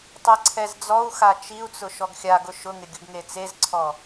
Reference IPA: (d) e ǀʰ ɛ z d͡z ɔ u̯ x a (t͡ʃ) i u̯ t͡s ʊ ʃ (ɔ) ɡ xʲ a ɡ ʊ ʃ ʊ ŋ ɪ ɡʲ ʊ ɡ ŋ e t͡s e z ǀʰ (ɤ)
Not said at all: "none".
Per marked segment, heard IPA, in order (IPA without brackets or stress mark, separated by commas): tˤ, t͡ʃ, ɔ, ɔ